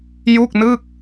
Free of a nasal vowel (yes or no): yes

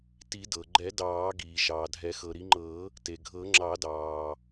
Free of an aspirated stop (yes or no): yes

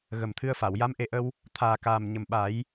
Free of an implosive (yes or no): no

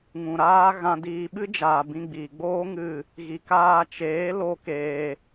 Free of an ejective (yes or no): yes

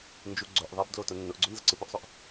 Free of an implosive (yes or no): yes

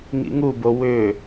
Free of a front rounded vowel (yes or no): no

